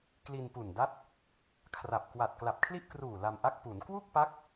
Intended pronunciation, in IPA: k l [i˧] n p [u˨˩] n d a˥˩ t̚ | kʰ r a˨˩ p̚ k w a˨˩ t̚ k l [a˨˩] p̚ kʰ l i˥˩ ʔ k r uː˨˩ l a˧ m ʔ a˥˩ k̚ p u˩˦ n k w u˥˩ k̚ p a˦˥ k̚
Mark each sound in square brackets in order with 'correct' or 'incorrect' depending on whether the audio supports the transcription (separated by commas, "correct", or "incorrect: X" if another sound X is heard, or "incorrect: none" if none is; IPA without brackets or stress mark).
correct, correct, correct